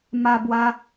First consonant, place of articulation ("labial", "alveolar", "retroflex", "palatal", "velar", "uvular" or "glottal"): labial